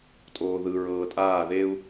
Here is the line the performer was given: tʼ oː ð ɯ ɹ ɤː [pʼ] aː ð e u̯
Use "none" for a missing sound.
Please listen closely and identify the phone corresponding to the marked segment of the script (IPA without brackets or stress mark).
tʼ